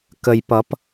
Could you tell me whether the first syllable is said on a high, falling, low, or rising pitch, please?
low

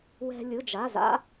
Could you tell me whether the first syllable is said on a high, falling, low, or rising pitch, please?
high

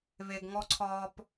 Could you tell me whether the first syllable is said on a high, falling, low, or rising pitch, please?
low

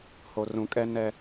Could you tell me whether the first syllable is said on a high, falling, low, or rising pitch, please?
low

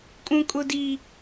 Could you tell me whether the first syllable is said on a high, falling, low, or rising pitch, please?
high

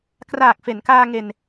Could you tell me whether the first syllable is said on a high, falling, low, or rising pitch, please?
low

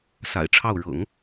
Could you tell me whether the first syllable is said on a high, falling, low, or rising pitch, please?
low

